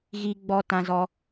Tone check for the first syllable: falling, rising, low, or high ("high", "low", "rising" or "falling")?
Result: high